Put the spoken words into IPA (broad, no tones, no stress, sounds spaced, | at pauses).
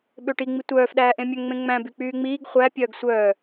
ɓ ø ʈ i ŋ͡m i tʷ œː f ɗ æː ʔ ẽ mʲ œ ŋ ŋ͡m ẽ ŋ͡m æ̃ b y k͡p yː ŋ͡m iː ɡ χʷ æ pʲ œː ɡ sʷ œː